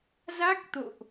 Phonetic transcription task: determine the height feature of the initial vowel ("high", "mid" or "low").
low